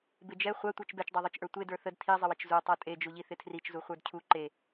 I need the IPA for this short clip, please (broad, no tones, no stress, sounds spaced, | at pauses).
b ɪ d͡ʒ ɛ χʷ a tʷ ə˞ t͡ʃ b ɛ t͡ʃ dˤ a ðˤ ə˞ t͡ʃ ʔ ə˞ tʷ e d ə˞ θ ə d tʰ i zˤ ɪ w ɪ t͡ʃ z u tˤ ə˞ tʼ e d͡ʒ u ʎ i θ ɪ tʰ r i t͡ʃ z u χʷ ə˞ d cʰ u ǃ e